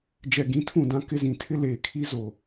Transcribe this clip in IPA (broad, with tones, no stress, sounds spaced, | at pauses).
d͡ʒ ɛ˨ ɡ ĩ˨˦ tʰ ũ˦˨ d ã˦ k ɪ˦ z ĩ˨ tʰ ɪ˦ l eː˨ kʰ i˦ z o˨